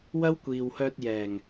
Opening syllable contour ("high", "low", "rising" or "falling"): high